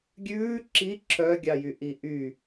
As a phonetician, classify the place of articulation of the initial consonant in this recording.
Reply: velar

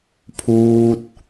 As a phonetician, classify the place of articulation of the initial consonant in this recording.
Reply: labial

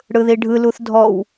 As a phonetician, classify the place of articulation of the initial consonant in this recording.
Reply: retroflex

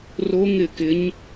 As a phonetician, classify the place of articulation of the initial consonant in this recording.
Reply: alveolar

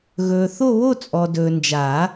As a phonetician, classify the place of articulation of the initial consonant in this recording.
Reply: velar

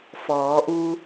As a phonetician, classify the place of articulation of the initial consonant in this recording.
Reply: labial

